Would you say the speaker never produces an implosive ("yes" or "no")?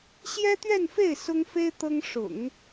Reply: yes